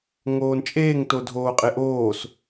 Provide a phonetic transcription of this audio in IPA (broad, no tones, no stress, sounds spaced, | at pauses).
ŋ oː n t͡ʃʼ eː ŋ t o dʱ oː qʼ e ʔ oː s